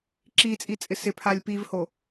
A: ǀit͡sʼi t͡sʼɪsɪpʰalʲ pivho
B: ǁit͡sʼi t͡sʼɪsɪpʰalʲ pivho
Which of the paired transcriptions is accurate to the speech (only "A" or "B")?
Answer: B